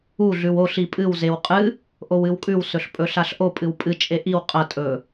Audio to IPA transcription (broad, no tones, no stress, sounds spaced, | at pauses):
u ɮ ʉ w o ɬ i pʼ ɨ w z e w qʼ ɨ | ʔ o w ɨ w kʼ ʉ w s ɵ ɬ pʼ ɵ ɬ a ɬ ʔ o pʼ ɨ w pʼ ɨ t͡ʃʼ e ʔ i w qʼ ɐ tʼ ɵ